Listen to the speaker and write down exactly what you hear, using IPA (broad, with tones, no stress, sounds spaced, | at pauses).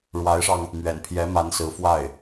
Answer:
ɻ w a˧˥ ɪ̯ ʂ ɑ˧ ŋ | m ɥ ɛ̰˨˩ n pʰ j ɛ˧˥ m a˧˥ n s ɹ̩˧˥ f w a˥˩ ɪ̯